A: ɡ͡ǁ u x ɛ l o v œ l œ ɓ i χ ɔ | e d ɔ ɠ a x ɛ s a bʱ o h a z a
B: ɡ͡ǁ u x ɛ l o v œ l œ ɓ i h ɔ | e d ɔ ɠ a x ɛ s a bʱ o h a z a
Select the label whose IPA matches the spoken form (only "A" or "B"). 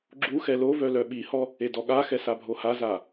B